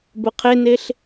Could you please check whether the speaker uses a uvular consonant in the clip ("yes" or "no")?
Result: yes